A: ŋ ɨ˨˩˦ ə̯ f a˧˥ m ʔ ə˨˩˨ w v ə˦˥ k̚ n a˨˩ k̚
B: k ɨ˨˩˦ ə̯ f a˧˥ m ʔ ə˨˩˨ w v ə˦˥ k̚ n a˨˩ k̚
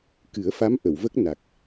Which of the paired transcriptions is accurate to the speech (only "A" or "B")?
B